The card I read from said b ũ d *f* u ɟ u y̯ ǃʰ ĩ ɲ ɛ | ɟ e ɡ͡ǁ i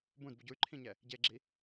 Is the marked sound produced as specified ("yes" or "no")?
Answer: no